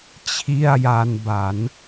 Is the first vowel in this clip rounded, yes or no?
no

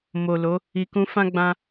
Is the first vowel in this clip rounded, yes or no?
yes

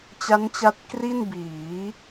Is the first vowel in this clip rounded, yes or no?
no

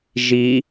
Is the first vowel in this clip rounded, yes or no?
no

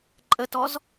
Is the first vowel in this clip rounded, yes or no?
no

